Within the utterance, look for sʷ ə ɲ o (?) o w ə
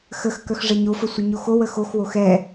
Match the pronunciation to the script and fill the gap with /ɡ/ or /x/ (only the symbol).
x